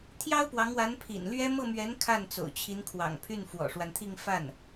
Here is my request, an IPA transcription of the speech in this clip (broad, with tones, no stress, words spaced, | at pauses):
t̪ʰjɑ˥ʊ̯pwɑ˧˥ŋwa˧˥n pʰḭ˨˩n lɥɛ˥ mɤ˥˩mɥɛ˧˥n kʰa˥˩n t͡so̰˨˩ʊ̯t͡ɕʰi˧˥nkʰwɑ̰˨˩ŋpʰy˥˩n fwɔ̰˨˩ʂwa˦nt̪ʰi˥˧ŋ fa˥˩n